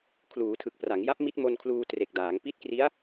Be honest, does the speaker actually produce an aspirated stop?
yes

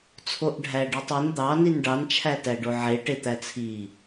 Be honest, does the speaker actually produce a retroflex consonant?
yes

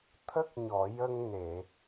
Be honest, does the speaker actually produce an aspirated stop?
yes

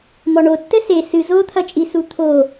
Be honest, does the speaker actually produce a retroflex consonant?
yes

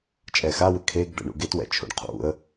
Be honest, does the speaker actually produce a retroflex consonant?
yes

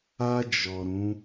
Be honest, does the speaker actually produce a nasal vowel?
yes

